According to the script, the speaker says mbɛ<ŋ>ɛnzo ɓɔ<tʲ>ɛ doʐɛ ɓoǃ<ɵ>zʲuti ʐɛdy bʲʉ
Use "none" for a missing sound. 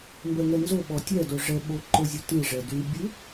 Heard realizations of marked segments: ŋ, tʲ, ɵ

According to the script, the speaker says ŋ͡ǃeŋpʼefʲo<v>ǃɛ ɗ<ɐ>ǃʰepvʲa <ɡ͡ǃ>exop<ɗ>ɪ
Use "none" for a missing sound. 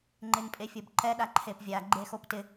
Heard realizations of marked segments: b, a, ɡ͡ǃ, t

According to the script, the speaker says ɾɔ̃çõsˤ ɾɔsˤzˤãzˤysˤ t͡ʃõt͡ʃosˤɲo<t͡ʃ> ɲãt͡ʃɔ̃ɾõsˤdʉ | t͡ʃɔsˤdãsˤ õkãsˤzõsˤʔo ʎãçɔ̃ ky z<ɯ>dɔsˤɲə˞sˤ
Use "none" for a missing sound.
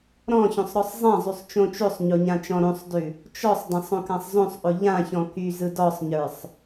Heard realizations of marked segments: none, ɯ

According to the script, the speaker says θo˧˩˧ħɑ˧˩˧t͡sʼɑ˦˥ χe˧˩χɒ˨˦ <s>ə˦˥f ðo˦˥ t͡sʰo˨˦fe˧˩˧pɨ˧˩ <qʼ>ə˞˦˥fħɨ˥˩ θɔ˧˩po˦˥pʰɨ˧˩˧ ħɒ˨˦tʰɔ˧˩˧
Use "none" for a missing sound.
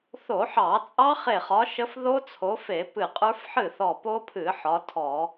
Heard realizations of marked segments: ʃ, qʼ

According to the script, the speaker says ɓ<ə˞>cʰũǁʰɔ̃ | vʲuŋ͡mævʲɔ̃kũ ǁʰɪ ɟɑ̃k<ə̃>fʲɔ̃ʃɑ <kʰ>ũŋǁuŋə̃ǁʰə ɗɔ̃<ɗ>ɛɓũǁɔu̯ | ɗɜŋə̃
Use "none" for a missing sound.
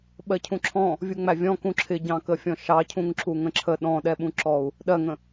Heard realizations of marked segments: ɜ, ə, cʰ, ɗ

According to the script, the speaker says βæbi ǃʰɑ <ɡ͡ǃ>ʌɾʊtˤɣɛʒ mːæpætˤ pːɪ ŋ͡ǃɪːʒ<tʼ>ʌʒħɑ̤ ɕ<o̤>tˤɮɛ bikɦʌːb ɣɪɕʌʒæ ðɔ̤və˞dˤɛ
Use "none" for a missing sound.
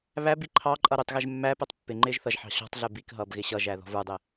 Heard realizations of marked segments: ǃʼ, θ, ɔ̤

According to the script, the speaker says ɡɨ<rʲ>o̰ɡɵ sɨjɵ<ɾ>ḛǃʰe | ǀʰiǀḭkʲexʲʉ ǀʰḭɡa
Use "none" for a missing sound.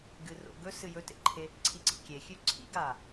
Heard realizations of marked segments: r, t

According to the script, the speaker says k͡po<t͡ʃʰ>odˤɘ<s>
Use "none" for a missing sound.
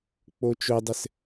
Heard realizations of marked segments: t͡ʃ, s

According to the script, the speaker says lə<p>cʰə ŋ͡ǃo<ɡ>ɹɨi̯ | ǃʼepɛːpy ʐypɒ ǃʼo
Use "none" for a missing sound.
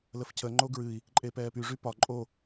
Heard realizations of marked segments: f, ɡ

